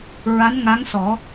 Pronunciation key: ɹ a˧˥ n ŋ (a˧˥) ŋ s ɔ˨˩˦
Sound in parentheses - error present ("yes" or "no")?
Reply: no